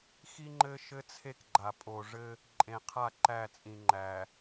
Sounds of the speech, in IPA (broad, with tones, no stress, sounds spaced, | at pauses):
x i˦ ŋ͡ǃ ɘ˦ ʃ ɘ˦ t͡sʰ e˦ k ɡ͡ǃ a˨ pʼ o˨ ʐ ɘ˦ | ǃʼ ẽ˨ qʰ a˦˨ ǃ æ˦˨ t͡sʼ ĩ˨ ŋ͡ǃ æ˨